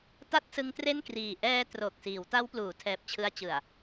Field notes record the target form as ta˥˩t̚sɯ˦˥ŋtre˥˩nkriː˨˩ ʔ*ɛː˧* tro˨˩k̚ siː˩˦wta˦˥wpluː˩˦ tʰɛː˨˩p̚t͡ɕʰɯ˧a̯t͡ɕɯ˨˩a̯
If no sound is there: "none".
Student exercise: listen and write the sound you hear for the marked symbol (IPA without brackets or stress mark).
ɛː˧